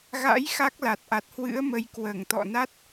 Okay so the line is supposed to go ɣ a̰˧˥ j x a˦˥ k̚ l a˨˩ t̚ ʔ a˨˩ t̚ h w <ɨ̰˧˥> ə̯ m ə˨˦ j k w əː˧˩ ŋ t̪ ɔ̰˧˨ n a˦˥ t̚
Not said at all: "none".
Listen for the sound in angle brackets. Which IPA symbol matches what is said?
ɨ̰˧˥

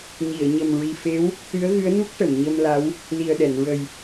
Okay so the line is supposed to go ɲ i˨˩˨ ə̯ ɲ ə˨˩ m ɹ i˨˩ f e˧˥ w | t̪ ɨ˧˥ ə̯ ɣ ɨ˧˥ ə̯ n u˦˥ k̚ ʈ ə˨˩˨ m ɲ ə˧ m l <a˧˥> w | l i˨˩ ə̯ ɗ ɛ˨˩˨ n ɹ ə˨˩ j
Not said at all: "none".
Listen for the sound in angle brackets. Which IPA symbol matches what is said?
a˧˥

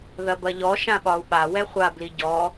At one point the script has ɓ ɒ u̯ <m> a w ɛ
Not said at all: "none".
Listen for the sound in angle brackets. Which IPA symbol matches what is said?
ɓ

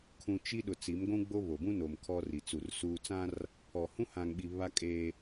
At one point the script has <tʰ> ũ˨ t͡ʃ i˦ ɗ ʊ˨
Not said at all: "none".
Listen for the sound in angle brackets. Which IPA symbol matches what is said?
kʰ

